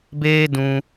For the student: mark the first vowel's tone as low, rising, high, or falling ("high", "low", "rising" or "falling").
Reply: high